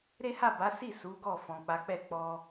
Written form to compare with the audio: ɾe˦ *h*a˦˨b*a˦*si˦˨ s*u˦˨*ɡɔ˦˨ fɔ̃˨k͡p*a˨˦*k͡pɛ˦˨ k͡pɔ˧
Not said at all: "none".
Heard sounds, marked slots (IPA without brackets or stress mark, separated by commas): h, a˨˦, u˨˦, a˨˦